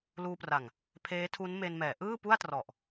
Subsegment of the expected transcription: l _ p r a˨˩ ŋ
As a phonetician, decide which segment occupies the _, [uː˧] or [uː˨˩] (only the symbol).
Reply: uː˧